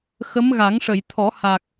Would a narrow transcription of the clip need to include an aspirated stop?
yes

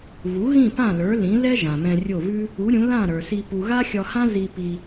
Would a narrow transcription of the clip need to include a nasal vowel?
yes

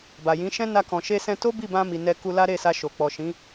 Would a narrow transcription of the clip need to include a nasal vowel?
yes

